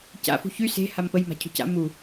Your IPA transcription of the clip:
c a̰ f ṳ ç y s e̤ h a m p ə j m a̤ cʰ ṳ c a̰ m u

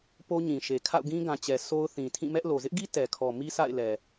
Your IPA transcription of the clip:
p o˦ ɲ ĩ˨ ʃ e˨ kʰ a̰˦˨ ʊ̯ ɡ ĩ˦ ɡ ã˨ t͡ɕ ɛ˨ sʰ o˦ ʊ̯ θ ĩ˨ tʰ ĩ˦˨ m ɛ˦ ʔ l o˨ z ɪ˦ ʔ ɡ i˦ t ɛ˨ kʰ ɔ˨ m i˦ sʰ a̰˦˨ ɪ̯ l ɛ˨

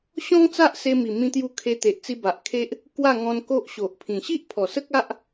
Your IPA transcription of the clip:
ɕ ɔ̃˦ ŋ t͡s a˦ ʔ s e˧ m i˨˩ m ĩ˧ t̪ j u˧ kʰ e˧ t̪ e˨ ʔ t͡s i˧ b a˨ ʔ kʰ e˦ ʔ | k w a˥˧ ŋ ɔ̃˧ n k o˦ ʔ ɕ o˨ ʔ pʰ ĩ˨˩ ɕ i˦ ʔ pʰ ɔ˨˩ s ə˦ k̚ a˦ ʔ

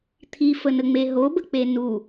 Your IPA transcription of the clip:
t̪ʰ i f ə n ə ŋ͡m e ɦ o b ə k͡p e n u

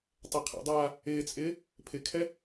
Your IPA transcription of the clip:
tˤ ɛ qʰ ɛ̰ dˤ aː | ɪː t͡sʼ ɪː | pʰ ɪ kʰ ɛ

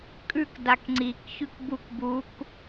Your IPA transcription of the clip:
kʼ ʉ k d a k ŋ͡ǀ i k ç ʉ k b u k b u k

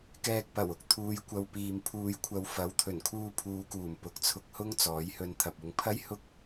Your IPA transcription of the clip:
k ɛː˨ k̚ p ɐ˨˩ w ʊ˨˥ k̚ t̪ʰ uː˨˧ j kʷ ɐ˨ w p iː˨ m pʰ uː˧ j kʷʰ ɐ˧ w f ɐ˨˥ w t̪ʰ ɵ˨˩ n kʰ uː˧ pʰ uː˨˧ k uː˨˩ m p ʊ˨ k̚ t͡sʰ ʊ˧ k̚ h ʊ˥ ŋ t͡s ɔː˨˥ j h ɵ˧ n t̪ʰ ɐ˨ p̚ ʊ˨˧ ŋ pʰ ɐ˥ j h ʊ˥ k̚

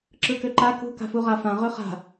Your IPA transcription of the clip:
ǁ ɯ k ø ǃ a k ṳ k a̤ f u ʁ a f ã ʁ ɵ χ a̤

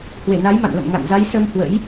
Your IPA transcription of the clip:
h w e˧˩ n a˨˦ j m a̰˧˨ n l ə̰˧˨ m ŋ a̰˧˨ n z a˨˦ j s ə˧ m h w ə̰˧˥ j

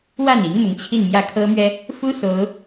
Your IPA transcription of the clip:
w a˥˩ n i˧˥ ŋ m ʊ˧˥ ŋ t͡ɕʰ i˥˧ n m j ä˥˩ kʰ ɤ˥ m ɥ ɛ˥ | f u˥ s o˧˥ ʊ̯

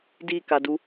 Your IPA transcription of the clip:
d i k a d u

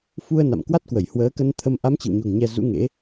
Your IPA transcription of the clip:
f u˧ ə̯ n a̰˧˨ m k w a˦˥ t̚ k w ə˧˩ j h w əː˨˦ k ə˧ n t̪ʰ ə˧ m ʔ a˨˦ m t͡ɕ ɨ̰˧˨ w ɲ o̤˨˩ ŋ ɲ ɛ˧ z ṵ˧˥ ŋ ḛ˧˥

